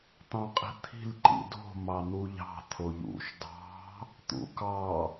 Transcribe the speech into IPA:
t̪ ɑ̃ qʼ i̤ t̪ʰ i̤ l ǃ ḭ d o̤ m ɑ n̪ u ʎ ɑ̤ t̪ʰ o ʎ ṵ ʃ d ɑ̤ | t̪ ṵ k ɑ

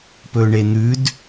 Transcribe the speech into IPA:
p ɵː ɳ e n̪ ʉ d

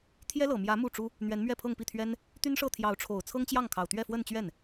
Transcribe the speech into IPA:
t̪ʰ j ɛ˥ l ɤ˨˩ m j ä˧˥ m u˥˩ ʈ͡ʂ u˥ | n̪ ɥ ɛ˧˥ n m ɥ ɛ˥˧ pʰ ɤ˥˧ ŋ p i˥˩ t̪ʰ ɥ ɛ˥ n | t̪ y˥ n ʂ ɤ˥˩ t̪ʰ j ɑ˧˥ ʊ̯ ʈ͡ʂʰ o˨˩ ʊ̯ t͡sʰ ɤ˥ ŋ t͡ɕ j ɑ˥˩ ŋ kʰ ɑ˨˩ ʊ̯ t̪ ɥ ɛ˥˧ f w ə˥˧ n t͡ɕ ɥ ɛ˥˩ n

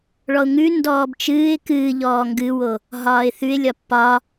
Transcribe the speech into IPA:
ɭ ɔ ʊ̯ ŋ ʉ n d ɔː b t͡ʃ ɨː ɪ̯ k ɨː ʎ ɔː ŋ ɡ ɨ w o | ɦ ɒː ɪ̯ θ ʉ ɪ̯ lʲ ɒ pː ɒ

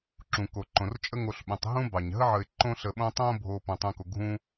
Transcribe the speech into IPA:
ǁ ũ˩ k o˩ ǃ õ˩ r t͡ʃʼ ə˦ ŋ o˨ ɬ ɓ ũ˩ tˤ ɦ ũ˥ b ɑ˩ ɲ ɦ ə˥ ʕ ə˨ ɪ̯ ǃ õ˦ ɬ ə˨ ɓ õ˦ tˤ õ˦ bʱ o˨ p õ˩ tˤ ũ˨ k o˩ ɡʱ ũ˥

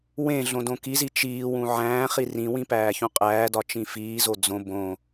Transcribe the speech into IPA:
w ẽ ɮ õ d õ k i z i t͡ʃ iː w ũ ʕ æ̃ː χ i r ĩ w ĩ p æː ç ũ qʼ æː d ɒ t͡ʃ ĩ f iː z o d͡z õ b õ

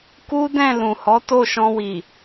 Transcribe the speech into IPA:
k u˦ d ɛ̃˦˨ l ũ˨ h ɔ˨˦ t o˦˨ ʃ ɔ̃˧ w i˨

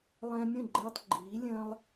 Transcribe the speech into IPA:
lˠ ɛ̃˧ mʲ ə̃˥˩ ɡ͡ǃ ɛ˧ tˤ ɡ͡ǃ iː˩˥ lʲ ə̃ː˥ lˠ

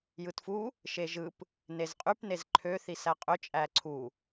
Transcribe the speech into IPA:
j ɯ t f u | ʃ e ʒ ɯ p | n e z qʼ y p n e z ǃʰ ø θ i s æ qʼ ø t͡ʃʼ æ ǀʰ u

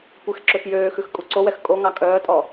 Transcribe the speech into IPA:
kʷ ɛ x ǁ ø x j øː x ʉ x kʼ u ǀ o w ɛ x kʼ o ŋ ɑ kʼ œː tʼ ɔ

